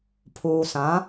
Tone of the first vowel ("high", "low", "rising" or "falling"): low